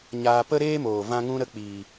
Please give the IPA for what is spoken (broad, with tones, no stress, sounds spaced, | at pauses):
ɲ aː˧ p ə˦ ɾ eː˦ m oː˨ v ã˧ ŋ ũ˧ ɾ ə˧ k͡p iː˨